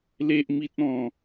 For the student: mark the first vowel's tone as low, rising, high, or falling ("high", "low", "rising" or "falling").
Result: high